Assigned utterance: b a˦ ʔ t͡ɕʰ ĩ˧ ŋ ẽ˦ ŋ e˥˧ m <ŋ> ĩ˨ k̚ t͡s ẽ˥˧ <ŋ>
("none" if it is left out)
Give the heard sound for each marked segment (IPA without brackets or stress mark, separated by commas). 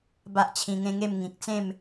ŋ, m